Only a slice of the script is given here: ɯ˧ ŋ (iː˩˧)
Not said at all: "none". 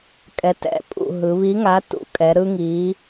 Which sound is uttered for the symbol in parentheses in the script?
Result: iː˩˧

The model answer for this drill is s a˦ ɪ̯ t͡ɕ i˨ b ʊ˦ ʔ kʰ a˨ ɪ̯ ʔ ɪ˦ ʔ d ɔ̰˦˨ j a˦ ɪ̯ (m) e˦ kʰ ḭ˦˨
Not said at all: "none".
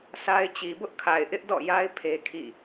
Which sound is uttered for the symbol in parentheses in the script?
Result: pʰ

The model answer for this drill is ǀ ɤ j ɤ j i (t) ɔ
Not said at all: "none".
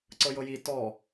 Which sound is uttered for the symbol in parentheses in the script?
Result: t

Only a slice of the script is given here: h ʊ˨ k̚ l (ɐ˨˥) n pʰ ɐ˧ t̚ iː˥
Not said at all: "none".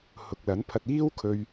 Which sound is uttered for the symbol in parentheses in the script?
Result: ɐ˨˥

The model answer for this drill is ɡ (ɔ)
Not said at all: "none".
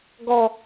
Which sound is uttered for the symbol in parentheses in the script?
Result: ɔ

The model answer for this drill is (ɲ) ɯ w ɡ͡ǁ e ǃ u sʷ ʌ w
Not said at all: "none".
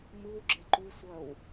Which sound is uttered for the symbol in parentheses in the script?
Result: m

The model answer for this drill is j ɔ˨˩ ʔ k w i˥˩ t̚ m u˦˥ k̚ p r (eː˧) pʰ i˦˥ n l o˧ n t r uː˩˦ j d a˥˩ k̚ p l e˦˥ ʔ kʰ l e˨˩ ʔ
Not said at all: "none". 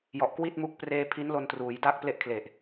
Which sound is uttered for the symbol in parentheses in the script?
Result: eː˧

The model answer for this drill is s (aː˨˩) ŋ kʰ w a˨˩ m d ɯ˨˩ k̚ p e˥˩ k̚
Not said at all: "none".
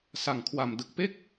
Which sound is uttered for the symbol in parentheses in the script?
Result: a˨˩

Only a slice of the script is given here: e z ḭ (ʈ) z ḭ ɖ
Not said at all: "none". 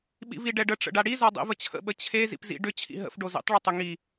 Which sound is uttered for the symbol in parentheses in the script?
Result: p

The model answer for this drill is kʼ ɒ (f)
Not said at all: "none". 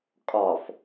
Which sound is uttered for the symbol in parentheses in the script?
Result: f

